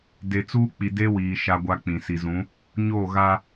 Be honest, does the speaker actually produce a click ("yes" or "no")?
no